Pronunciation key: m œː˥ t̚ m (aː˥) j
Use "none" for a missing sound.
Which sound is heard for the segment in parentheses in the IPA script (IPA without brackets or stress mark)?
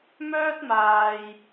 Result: aː˨